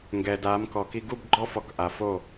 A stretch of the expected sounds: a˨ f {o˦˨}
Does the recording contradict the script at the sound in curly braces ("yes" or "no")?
no